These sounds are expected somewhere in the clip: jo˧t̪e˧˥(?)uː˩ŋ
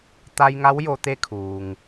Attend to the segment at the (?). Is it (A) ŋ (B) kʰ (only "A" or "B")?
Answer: B